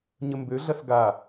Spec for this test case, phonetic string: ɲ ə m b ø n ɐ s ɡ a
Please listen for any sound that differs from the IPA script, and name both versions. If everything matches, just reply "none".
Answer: n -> ɮ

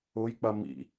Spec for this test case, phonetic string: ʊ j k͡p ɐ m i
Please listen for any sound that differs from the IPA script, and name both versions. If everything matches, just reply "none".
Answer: i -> ḭ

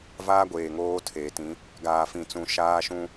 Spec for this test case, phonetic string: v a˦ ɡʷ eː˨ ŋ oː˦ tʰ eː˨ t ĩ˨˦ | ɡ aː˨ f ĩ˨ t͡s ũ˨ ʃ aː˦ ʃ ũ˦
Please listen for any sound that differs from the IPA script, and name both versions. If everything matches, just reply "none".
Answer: a˦ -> aː˦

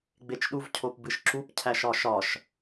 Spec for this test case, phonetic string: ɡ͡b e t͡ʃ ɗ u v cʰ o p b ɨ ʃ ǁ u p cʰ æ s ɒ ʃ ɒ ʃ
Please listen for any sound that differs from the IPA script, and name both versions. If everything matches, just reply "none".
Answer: s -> ʃ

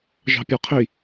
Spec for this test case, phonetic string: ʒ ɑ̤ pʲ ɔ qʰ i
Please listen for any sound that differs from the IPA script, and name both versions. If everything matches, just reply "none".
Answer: none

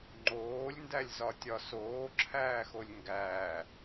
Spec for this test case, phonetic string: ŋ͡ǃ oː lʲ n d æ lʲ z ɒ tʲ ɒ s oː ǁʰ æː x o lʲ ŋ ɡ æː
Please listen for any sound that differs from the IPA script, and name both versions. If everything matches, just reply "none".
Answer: none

